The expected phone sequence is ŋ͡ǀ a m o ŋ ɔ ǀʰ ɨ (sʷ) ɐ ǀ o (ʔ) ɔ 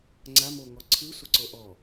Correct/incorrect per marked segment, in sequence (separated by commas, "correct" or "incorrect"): correct, correct